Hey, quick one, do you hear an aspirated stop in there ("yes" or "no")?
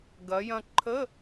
yes